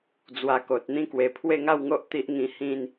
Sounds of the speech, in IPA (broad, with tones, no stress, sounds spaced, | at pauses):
d͡z w a˧ k o˨ t̚ n̪ ĩ˦ k w e˨˩ pʰ w e˥˧ ŋ a˥˧ w ŋ o˦ ʔ t̪ i˦ ʔ ŋ ĩ˧ h ĩ˥˧ n